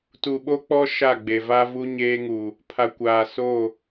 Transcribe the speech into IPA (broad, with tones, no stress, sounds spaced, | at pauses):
t u˨ ɓ o˦ k͡p ɔ˦ ʃ a˦˨ ɡ͡b e˨ v a˦ v u˦ ɲ eː˦ ŋ uː˨ | pʰ a˨ kʷ aː˨ s o˦˨